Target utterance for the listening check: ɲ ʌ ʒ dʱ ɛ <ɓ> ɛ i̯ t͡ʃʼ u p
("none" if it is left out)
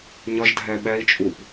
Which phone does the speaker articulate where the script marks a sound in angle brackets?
ɓ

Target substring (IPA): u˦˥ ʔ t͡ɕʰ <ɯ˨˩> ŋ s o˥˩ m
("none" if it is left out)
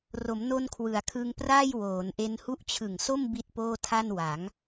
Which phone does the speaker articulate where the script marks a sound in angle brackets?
ɯ˨˩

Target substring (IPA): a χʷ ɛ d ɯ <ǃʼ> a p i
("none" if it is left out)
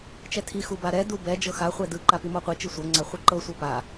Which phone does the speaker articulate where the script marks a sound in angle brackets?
ǃ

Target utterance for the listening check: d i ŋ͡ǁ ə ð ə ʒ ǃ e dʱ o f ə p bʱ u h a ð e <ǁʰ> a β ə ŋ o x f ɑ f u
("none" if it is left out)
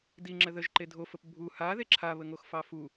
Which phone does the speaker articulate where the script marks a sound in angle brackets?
ǁʰ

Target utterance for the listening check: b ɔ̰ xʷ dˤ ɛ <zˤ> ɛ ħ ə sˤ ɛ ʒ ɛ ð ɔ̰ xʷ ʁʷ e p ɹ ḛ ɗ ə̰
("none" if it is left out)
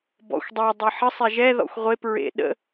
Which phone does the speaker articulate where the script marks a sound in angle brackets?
dˤ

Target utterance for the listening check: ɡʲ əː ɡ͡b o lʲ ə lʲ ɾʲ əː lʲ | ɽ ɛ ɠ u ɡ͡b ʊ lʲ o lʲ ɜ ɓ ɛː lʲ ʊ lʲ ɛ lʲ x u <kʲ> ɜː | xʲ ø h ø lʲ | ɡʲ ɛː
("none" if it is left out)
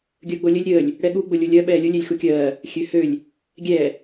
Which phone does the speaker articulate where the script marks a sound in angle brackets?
kʲ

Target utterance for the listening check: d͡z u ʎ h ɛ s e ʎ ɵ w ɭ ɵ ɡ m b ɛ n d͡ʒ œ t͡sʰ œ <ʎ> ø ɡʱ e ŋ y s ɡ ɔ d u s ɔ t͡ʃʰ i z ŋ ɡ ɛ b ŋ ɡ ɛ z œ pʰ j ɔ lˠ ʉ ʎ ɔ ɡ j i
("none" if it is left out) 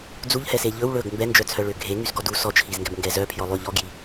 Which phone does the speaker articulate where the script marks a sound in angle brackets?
ɭ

